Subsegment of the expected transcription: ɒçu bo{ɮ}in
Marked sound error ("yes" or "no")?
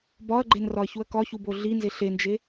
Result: no